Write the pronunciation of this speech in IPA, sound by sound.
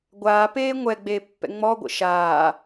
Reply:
ɡʷ aː p eː ŋʷ ɛ ɡ͡b eː pː ɛ̰ ŋ͡m ɔ ɡʷ ə̰ ʃ aː

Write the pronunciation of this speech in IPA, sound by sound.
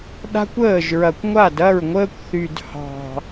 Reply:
ɗ a̤˦ kʷ əː˦˨ ʒ ɹ ɐ˨ kʷ ŋʷ a˦˨ d ɐ˦˨ ɹ ŋʷ əː˧ kʷ θ y˨ d h ɑ̤˨

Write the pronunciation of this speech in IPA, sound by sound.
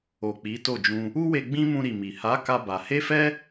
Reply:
o˨ k͡p i˨˦ t o˦˨ d͡ʒ ũ˧ | u˦ w e˧ ɡ͡b ĩ˦ m ũ˧ ɾ i˨ m i˨ h a˨˦ k a˧ b a˧ h e˦ f ɛ˦

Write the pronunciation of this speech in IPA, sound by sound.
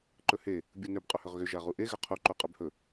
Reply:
ǃ ɵ h e | bʲ u n ø b qʼ ɵ h ʏ ʁ ɣ ʏ ʒ a ʁ u ʔ e ɣ ʏ qʰ u ǃ u qʼ ɵ b h ɵ

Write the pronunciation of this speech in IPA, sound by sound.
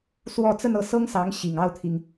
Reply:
s w ɔ˥˧ t͡s ə˥˧ n ɤ˥˩ s ɤ˥ ŋ s ɑ˧˥ ŋ ɕ i˨˩ ŋ ɑ˥˩ ʊ̯ t̪ʰ i˩ ŋ

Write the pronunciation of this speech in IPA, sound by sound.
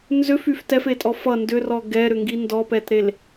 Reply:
n z ʏ f y f t ɛ f e tʼ ɔ f ʌ n d ʏ r ɔ ɡ ɛ ɾ ʏ ŋ ɡ i n d ɔ p ɛ t ɾ e l

